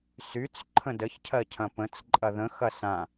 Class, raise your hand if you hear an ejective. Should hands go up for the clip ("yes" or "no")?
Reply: yes